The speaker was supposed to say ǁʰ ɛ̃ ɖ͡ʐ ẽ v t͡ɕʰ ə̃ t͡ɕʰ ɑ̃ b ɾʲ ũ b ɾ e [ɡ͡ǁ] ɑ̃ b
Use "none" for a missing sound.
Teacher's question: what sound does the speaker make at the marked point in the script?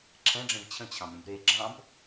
ɡ͡ǁ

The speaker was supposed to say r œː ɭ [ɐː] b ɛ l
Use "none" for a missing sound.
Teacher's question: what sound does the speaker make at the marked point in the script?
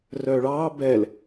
ɑː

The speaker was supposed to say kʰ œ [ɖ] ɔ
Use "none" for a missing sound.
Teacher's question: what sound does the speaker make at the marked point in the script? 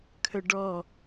ɖ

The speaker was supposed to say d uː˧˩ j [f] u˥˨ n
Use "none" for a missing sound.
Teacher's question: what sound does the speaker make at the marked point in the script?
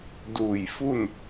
f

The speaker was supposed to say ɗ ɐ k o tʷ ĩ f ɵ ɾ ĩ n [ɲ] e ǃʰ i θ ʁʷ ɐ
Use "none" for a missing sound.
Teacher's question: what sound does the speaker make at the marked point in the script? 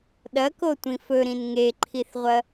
ŋ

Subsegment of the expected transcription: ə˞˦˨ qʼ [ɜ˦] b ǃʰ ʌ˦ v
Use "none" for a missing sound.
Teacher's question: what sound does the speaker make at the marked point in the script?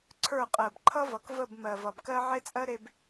ɜ˨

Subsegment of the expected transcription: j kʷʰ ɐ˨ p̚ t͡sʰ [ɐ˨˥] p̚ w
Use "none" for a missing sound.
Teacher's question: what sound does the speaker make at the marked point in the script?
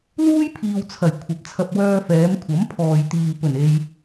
ɐ˧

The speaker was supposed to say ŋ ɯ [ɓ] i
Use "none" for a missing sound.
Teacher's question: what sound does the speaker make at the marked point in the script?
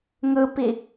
p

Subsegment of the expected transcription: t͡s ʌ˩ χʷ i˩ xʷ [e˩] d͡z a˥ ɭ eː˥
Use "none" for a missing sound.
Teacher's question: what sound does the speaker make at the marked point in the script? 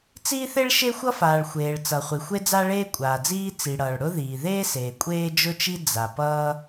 e˥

